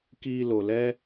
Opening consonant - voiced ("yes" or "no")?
no